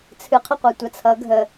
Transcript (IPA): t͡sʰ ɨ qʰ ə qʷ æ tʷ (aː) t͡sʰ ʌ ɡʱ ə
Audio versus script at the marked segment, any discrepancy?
yes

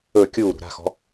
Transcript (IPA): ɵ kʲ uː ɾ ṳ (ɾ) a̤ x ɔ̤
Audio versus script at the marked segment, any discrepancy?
no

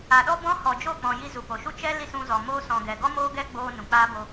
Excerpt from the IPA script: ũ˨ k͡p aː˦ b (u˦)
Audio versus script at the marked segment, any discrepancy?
yes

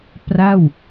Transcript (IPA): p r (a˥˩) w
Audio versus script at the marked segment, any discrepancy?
no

